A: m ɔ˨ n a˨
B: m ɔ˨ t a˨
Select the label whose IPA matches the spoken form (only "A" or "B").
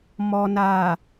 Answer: A